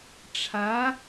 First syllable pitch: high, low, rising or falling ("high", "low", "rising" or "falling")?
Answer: rising